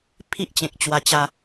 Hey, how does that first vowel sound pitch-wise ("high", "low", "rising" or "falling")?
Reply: high